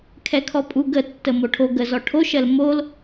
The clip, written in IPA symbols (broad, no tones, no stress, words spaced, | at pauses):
kʰɛkʰɔpʼuɡ ə tːəmoʈʰo ɡə zɔʈʰoʃɜl mol